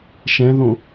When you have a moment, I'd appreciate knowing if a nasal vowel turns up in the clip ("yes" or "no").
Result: yes